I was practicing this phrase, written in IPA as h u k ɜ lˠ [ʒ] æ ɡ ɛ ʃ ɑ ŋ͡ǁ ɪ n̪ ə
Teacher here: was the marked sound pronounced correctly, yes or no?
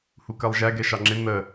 yes